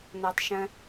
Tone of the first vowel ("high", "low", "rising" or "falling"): low